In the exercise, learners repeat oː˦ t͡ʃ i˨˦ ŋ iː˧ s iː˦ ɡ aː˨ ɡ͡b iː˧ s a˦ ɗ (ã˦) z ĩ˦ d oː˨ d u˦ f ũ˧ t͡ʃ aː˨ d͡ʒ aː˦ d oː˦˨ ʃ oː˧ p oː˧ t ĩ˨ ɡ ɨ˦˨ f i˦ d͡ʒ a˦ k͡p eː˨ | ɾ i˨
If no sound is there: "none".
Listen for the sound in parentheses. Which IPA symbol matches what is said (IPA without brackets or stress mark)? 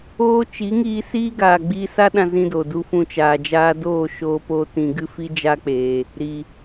ã˦